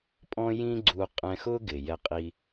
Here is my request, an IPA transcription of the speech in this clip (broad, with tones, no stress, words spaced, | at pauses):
pʼɔ̃˥jĩ˥ɡ͡ǀu˧ qʼɛ̃˧xʊ˥ɡɪ˩ jɛ˧qʼi˧